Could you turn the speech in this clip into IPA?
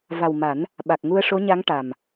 va˨˩wma˨˩˦n | ɓa˨˩k̚ŋu˧ə̯ʂo˧˥ɲa˧˥ŋ ʈa˨˩m

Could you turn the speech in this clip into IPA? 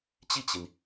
t͡ɕi˥˩t͡ɕi˩n

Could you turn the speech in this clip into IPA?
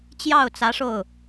t͡ɕjɑ˥˩ʊ̯t͡sä˧˥ ʂo˥˩ʊ̯

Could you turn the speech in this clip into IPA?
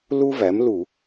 lu˥væ˩˥mlu˧˩˧

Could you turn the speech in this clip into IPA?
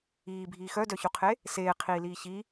iːbʱiː xœdœçuqʰe | seːqʰiːliː çi

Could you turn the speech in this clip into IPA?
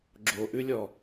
ɡ͡ǁoʔʉlʲɔ

